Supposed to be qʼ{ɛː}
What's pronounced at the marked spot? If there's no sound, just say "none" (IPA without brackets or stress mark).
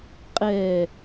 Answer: ɛː